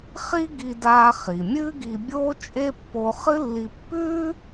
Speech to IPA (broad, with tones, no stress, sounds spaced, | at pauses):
χ i˥ ɡ i˧ d aː˧ χ i˩ mʲ ɨː˥ ɡ i˧ bʲ oː˥ t͡ʃʼ e˥ pː o˧ χ ɨ˥ lː i˧ pː ʉː˥